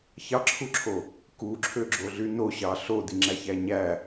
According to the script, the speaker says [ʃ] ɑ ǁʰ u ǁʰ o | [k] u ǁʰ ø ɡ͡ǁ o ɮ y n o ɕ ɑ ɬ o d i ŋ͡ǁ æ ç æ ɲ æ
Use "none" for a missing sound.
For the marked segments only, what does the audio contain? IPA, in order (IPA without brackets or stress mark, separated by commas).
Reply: ç, k